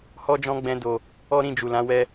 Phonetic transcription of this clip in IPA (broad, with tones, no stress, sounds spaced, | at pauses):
h ɔ˦ d͡ʒ ɔ̃˦ ɡ͡b ɛ̃˦ d o˧ | ɔ˦ ɾ ĩ˦˨ d͡ʒ u˨ l ã˨˦ w ɛ˧